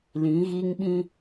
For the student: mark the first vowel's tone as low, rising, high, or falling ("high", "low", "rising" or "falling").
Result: rising